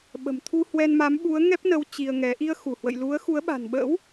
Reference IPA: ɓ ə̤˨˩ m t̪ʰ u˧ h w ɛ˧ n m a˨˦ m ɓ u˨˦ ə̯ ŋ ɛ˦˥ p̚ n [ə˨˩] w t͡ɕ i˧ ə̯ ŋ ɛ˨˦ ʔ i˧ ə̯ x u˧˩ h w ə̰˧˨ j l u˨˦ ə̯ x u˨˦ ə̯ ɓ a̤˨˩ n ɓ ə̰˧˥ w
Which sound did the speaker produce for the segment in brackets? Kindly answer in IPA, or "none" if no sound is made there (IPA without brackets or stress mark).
ə˨˦